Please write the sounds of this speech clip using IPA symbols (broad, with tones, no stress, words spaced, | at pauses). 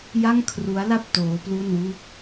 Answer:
ja˥˩ŋkʰru˦˥a̯la˥˩p̚ toː˦˥plu˥˩nwu˥˩k̚